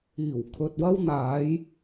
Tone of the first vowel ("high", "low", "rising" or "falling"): low